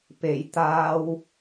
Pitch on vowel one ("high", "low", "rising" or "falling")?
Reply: low